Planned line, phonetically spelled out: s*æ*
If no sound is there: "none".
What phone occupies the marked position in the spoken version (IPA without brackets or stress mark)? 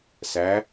æ